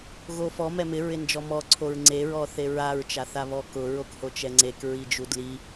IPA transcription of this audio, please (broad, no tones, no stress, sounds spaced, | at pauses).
ɣ o f ɔ m ɛ m ɪ ɹ ɪ n d͡ʒ ɔ m ɔ ǀʰ o ɹ ŋ͡ǀ e ɹ ɔ θ e ɹ a ɹ t͡ʃ a θ a β ɔ k ʊ ɹ o k h o t͡ʃ ɛ ŋ͡ǀ e k ɹ i d͡ʒ u d l i